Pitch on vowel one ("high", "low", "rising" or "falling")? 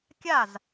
falling